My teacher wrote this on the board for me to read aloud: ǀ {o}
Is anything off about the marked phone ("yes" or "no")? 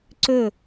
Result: yes